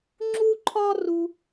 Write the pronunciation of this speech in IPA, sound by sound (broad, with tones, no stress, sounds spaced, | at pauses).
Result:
ŋ͡ǁ u˥ ǃʰ ɒ˥ r u˥